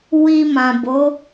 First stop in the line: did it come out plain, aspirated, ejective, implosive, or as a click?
plain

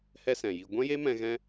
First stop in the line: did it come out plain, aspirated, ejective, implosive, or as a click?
plain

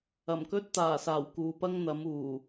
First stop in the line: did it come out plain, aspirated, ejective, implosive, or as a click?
plain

